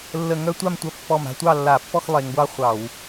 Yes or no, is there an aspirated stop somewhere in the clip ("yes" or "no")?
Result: no